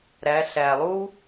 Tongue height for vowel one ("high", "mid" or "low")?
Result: low